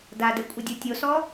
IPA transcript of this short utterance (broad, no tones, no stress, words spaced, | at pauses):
dadɛ kʷʼədʲotʲosɔ